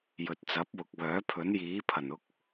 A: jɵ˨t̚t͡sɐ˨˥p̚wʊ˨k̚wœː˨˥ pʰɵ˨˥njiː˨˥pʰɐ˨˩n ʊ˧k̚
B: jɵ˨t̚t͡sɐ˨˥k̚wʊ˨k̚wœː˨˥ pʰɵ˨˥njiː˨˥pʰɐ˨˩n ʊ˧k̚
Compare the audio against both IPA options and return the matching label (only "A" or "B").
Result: A